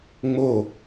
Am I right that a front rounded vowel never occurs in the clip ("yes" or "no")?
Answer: yes